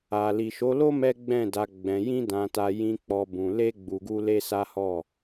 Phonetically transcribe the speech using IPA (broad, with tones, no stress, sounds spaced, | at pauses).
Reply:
a˨ l i˨ ʃ o˨˦ l o˦ m ɛ˦ ɡ͡b ɛ̃˦˨ d a˧ ɡ͡b ɛ̃˧ j ĩ˦ d ã˧ t a˧ j ĩ˦ k͡p ɔ˦ b ũ˧ l e˦ ɡ͡b u˧ ɡ u˦ l e˦ s a˦ h ɔ˦˨